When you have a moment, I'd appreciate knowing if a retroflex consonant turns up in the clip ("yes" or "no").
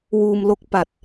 no